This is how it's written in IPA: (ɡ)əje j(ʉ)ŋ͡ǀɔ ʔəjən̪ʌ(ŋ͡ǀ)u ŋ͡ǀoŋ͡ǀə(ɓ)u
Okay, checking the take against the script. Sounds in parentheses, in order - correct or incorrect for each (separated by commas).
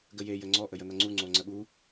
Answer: correct, incorrect, correct, correct